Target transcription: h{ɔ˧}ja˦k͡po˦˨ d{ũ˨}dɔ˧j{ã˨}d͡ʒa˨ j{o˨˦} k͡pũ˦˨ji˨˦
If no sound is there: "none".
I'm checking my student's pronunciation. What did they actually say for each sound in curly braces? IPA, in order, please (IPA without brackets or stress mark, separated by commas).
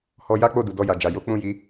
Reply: ɔ˧, u˨, a˨, o˨˦